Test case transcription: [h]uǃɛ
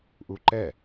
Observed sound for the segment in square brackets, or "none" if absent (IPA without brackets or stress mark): ʔ